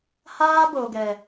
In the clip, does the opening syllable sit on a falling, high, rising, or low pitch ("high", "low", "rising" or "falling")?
high